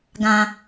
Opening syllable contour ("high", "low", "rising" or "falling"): low